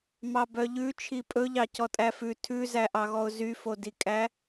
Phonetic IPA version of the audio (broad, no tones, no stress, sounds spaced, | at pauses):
m ɑ b œ ʎ ʉ t͡ʃʰ i pʼ ɵ ʎ ɑ c ɔ tʼ æ f ʉ tʰ ʉ z æ ʔ ɑ ɣ ɔ ʊ̯ z y f o d i kʼ æ